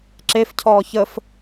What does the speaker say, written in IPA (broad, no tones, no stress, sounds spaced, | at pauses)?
ǁ e f cʰ ɔː ç ə f